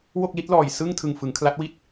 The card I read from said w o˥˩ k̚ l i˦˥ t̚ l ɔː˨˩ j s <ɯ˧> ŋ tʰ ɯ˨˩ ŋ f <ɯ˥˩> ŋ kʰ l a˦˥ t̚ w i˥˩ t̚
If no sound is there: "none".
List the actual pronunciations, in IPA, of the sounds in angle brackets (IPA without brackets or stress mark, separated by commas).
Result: ɯ˥˩, ɯ˩˦